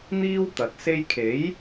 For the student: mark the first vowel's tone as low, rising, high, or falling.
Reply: high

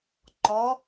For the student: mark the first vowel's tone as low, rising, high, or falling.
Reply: rising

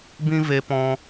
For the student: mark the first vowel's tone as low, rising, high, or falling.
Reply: high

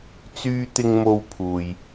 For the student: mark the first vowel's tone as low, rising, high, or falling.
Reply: high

